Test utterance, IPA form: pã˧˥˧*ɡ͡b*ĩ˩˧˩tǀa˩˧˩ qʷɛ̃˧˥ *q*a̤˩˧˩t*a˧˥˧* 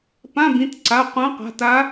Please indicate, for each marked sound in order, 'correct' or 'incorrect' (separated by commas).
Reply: incorrect, correct, incorrect